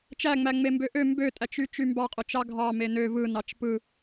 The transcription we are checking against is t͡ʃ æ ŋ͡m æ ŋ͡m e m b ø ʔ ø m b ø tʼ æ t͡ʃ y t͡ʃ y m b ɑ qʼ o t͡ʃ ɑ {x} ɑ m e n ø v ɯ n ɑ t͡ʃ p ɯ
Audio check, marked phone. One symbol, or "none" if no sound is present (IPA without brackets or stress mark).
ɡʱ